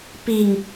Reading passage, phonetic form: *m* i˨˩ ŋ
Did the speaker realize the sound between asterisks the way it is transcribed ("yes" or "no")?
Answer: no